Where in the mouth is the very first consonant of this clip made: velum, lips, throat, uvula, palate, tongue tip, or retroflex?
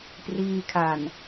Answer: lips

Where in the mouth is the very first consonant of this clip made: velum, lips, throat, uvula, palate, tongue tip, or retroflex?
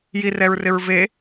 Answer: palate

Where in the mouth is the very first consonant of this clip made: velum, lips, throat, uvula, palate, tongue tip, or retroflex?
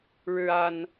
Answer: retroflex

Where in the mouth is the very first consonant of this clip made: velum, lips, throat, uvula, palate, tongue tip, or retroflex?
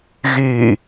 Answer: velum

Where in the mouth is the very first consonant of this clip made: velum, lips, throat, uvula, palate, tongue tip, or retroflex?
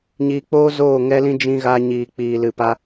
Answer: palate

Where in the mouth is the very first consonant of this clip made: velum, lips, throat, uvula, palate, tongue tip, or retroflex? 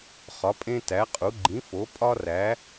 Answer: uvula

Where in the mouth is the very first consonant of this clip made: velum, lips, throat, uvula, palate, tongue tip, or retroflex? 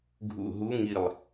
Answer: velum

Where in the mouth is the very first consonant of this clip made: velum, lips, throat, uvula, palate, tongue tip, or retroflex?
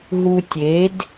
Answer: throat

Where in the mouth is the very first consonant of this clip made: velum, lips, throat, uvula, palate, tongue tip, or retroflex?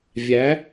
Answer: lips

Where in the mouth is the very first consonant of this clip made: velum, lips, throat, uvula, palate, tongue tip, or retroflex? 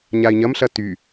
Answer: palate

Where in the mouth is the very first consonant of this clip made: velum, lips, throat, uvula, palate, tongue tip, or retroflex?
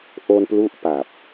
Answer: throat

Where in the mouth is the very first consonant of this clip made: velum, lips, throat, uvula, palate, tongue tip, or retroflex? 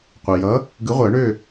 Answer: uvula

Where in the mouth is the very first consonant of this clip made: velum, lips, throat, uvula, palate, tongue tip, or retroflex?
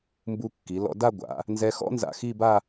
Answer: lips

